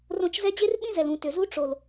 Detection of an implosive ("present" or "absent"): present